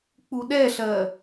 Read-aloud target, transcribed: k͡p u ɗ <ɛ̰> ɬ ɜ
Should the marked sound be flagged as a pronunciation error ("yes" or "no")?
yes